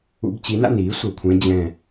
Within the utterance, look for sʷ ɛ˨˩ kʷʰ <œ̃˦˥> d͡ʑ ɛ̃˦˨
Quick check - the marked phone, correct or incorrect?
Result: incorrect: ɛ̃˦˥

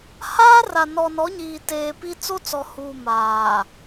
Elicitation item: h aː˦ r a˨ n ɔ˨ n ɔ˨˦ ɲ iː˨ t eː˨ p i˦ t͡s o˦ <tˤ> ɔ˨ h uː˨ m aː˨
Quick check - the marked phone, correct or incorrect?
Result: incorrect: t͡s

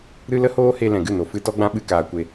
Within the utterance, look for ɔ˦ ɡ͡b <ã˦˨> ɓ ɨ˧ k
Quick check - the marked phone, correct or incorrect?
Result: incorrect: ã˦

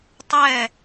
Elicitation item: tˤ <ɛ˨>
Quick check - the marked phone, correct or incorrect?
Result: incorrect: ɛ˦˨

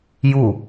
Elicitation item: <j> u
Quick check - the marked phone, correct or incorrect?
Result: correct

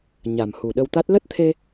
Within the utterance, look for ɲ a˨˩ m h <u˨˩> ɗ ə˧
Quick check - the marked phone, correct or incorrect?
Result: correct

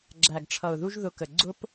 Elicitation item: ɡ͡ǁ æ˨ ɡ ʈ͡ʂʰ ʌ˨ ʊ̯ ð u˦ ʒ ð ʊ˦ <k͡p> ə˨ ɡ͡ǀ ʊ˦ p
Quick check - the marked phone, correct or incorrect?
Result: incorrect: k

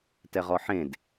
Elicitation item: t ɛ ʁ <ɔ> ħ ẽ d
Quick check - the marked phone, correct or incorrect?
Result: correct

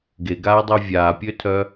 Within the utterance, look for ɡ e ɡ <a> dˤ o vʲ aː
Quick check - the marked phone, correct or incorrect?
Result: incorrect: aː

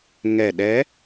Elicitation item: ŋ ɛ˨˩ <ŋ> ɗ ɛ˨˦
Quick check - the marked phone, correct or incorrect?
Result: incorrect: none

